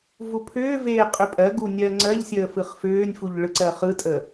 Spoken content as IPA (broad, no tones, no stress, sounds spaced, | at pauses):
v u pʰ ʏː v eː qʼ ʏ pʼ ɜ ɡ u nʲ ɜ ŋ͡ǀ ɜ ʎ sʲ əː f ɯ χ f ʏː nʲ f u ʎ ɭ ɯ ǀ ɜ χ ɯ tʼ ə